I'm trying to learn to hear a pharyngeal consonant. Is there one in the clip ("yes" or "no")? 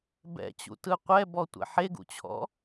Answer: yes